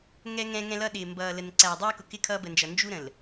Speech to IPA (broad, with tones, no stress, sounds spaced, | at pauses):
ŋ ɛ˦ ŋ ɛ̃˦ ŋ ɛ̃˦ l ʌ˦ ɗ ɪː˨ m b ʌː˨ l ə˨ n ǀ æː˨ dˤ ɛː˦ k ʊ˨ k ɪ˦ kʰ ʌː˦ b ə˨ n d͡ʒ ʌ˨ n d͡ʒ u˦ ɾ ə̃˨ l